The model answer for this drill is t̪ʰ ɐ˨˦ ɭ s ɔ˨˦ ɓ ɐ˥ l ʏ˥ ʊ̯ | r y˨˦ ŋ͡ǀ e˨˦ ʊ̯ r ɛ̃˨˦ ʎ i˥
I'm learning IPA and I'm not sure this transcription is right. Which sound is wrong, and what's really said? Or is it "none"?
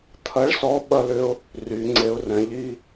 none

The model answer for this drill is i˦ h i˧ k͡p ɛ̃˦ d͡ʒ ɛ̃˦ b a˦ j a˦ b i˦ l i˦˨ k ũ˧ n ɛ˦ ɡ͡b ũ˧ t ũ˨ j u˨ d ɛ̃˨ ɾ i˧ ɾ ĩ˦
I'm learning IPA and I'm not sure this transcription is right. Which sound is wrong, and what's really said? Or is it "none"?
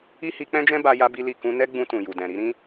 none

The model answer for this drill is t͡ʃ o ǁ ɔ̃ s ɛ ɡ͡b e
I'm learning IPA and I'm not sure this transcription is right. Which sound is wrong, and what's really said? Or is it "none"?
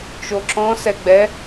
e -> ɛ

